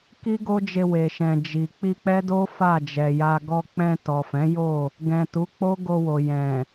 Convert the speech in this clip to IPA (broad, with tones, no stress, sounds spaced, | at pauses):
k i˦ ɡ o˦ d͡ʒ e˧ w e˨ ʃ ɛ̃˨ d͡ʒ i˨ k͡p i˧ k͡p ɛ˦ d o˦ f a˦˨ d͡ʒ ɛ˨ j a˧ ɡ ɔ˧ k͡p ɛ̃˧ t ɔ˨ f ɛ̃˨˦ j o˦˨ | ɡ ɛ̃˨ t u˨˦ k͡p o˦ ɡ o˧ w o˨ j ɛ̃˨